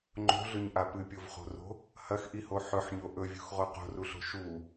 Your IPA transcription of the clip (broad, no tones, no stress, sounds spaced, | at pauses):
ŋ͡ǃ o̤ ɮ ɵ ɲ ʔ a p ɨ pʲ o v χ o̤ r o̤ | h ɐ x ʔ i h o ħ ɵ ħ ɲ o ʔ ɵ vʲ ṳ x ʁ o q o̤ r u ɬ o̤ ʃ u